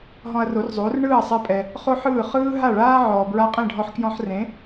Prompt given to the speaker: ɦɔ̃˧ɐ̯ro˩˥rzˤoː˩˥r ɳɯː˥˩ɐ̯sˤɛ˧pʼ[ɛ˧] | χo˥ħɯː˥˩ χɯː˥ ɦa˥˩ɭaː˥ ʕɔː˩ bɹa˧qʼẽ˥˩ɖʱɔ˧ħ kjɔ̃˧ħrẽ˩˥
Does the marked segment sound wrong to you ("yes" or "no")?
yes